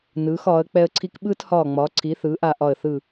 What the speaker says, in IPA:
n ɯː˩˥ x ɒː˩˥ ə̯ k͡p ɛ˦ ə̯ ǀʰ i˦ k ɓ ɯː˦ t h ɒː˧˩ ŋ͡m ɒ˩˥ ǀʰ i˩˥ θ ɯː˩˥ ʔ a˧˩ ʔ ɒ˧˩ ə̯ θ ɯ˧˩

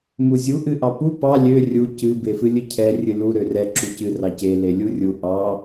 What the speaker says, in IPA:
m u zʲ u ʔ ɨ ʔ ɑ p u p ɑ lʲ ø rʲ u c ɨ b e f ɨ lʲ ɨ cʰ ɛ rʲ ɨ l u ɾ ø r ɛ ǁ u c ɨ r ɑ c e l e lʲ u rʲ u ʔ ɑ

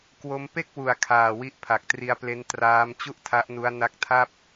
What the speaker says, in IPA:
k w o˦˥ m p e˥˩ k̚ w u˨˩ a̯ kʰ aː˨˩ w i˦˥ ʔ pʰ a˨˩ k̚ t r i˧ a̯ p l e˦˥ n t r aː˦˥ m t͡ɕ u˥˩ ʔ tʰ a˦˥ ʔ n u˦˥ a̯ n a˦˥ k̚ tʰ a˥˩ p̚

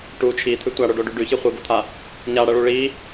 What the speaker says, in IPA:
ʈ u t͡ʃʰ i t̪ʰ ʉ tʷ a ɽ o ɖ o ɖ ʉ ɖ ʉ ç i χʷ ɨ ɡ o t̪ʰ a | ɲ a ɽ ɐ ɭ u ɭ i

